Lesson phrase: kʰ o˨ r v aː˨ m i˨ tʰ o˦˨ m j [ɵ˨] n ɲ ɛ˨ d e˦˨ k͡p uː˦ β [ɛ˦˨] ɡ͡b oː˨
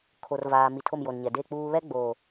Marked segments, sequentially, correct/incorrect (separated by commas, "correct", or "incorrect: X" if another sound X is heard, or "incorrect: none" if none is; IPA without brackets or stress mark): incorrect: o˨, incorrect: ɛ˦